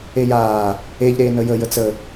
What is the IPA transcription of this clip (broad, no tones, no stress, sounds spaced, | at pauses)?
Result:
e j aː | e ʎ ɾ eː n ə j ə j ə t͡s ə